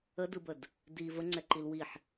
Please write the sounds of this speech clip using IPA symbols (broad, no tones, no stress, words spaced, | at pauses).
ədɯbəd | di vəŋ͡ǀɛǃil wiħ